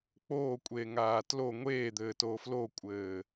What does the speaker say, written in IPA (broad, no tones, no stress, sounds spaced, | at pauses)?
k͡p oː kʷʼ eː ŋ aː t l o ŋʷ eː d̪ ɘː t oː f l o kʷʼ ɘː